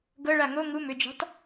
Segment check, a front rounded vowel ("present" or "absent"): present